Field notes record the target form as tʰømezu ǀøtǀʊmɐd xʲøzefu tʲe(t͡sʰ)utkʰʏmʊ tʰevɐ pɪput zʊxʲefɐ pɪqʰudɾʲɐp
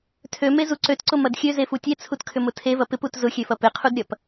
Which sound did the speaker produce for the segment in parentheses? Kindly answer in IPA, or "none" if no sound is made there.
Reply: t͡sʰ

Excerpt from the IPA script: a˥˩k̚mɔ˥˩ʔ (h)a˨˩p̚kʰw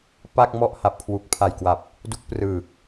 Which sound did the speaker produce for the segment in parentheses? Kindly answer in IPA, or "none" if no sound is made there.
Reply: h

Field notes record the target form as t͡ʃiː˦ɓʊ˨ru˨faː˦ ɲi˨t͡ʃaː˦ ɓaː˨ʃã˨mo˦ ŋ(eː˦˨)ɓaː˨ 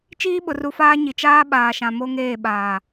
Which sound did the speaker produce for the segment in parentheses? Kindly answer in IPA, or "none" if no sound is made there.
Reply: eː˦˨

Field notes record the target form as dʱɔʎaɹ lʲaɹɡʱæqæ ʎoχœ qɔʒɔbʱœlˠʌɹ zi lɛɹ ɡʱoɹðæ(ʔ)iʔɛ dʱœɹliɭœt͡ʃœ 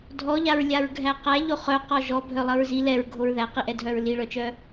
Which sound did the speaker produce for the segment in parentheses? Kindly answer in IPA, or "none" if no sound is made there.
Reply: q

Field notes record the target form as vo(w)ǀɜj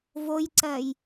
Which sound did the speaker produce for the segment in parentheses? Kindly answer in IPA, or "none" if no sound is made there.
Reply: j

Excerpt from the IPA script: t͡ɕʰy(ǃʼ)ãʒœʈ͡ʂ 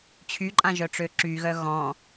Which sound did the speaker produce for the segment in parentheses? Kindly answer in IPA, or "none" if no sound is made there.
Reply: ǃʼ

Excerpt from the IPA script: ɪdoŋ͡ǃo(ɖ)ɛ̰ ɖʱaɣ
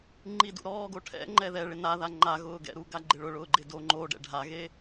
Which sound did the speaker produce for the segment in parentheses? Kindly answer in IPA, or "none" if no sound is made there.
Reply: ɖ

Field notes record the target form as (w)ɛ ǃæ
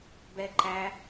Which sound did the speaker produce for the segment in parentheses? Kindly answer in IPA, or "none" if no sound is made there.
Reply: b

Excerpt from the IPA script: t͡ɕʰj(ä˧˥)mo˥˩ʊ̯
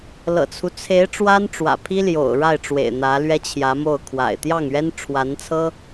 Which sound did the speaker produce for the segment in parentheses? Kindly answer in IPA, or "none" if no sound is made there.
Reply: ä˧˥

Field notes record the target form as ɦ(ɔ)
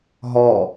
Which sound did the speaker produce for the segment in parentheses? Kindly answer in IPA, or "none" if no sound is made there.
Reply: ɔ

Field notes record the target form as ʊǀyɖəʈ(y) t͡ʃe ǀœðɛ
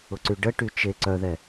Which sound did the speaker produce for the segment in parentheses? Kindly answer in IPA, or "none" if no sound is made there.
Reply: y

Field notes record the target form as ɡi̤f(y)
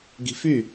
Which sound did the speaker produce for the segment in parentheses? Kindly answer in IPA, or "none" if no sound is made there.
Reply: y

